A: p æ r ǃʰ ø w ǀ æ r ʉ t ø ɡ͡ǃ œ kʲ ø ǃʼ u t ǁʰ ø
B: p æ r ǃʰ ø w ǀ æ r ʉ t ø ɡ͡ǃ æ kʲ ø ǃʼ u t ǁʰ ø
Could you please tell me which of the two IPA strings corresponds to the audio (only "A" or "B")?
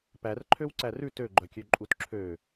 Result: A